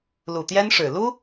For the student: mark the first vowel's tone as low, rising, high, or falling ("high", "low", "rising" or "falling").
low